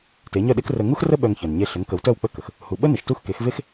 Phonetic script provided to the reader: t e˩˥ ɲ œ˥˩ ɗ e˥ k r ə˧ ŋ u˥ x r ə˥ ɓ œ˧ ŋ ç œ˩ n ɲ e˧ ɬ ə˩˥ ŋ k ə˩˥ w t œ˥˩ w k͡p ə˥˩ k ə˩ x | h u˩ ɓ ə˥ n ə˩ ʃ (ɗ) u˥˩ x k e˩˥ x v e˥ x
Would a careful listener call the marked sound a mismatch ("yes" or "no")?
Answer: yes